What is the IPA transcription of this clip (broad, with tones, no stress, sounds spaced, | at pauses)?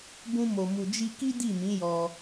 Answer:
b ũ˦ m o˧ m u˧ d͡ʒ i˦ k i˦ d i˦˨ m ĩ˨˦ j ɔ˧